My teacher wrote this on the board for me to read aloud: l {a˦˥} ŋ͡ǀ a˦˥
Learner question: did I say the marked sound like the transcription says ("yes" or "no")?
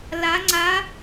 yes